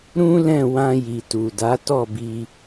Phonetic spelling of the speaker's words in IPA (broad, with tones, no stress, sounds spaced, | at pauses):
ɾ ũ˦ l ɛ̃˦˨ w ã˧ j i˨ t u˨ d a˨˦ t ɔ˦˨ b i˧